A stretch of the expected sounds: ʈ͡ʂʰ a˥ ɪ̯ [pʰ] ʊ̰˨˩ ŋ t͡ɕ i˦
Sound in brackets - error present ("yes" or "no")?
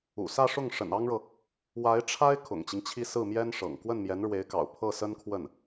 yes